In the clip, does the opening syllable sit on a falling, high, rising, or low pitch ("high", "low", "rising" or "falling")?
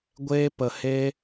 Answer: high